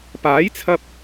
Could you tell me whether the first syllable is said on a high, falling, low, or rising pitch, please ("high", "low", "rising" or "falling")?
rising